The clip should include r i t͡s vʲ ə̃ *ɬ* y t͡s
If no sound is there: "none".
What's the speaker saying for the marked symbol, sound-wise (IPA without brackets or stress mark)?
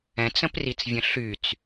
ɬ